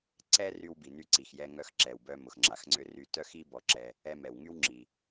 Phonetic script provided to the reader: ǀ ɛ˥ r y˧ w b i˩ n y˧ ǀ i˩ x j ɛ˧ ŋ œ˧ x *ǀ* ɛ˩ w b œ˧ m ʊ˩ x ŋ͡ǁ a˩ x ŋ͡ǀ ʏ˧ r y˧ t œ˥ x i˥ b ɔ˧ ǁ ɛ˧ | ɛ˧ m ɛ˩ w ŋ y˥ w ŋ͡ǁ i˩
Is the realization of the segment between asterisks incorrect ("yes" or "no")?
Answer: yes